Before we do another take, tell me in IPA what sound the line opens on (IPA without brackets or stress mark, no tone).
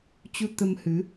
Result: t͡ɕ